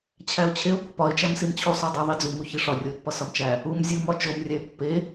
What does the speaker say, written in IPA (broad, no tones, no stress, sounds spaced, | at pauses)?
t͡ɕʰ æ ʊ̯ t͡ɕʰ e ʊ̯ pː ɒ ɪ̯ t͡ʃ æ m s i m t͡ɕʰ u sˤ o dˤ i ðˤ i d͡z u m u ç i ʂ ɒ rʲ o ɪ̯ pː ɒ s ɒ m t͡ʃ æ | u m zʲ u m ɒ t͡ʃ o m rʲ æ ɪ̯ pː e